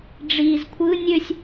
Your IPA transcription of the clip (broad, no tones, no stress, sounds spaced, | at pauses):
ɖ͡ʐ iː z kʷʰ ɯ nʲ ø sʲ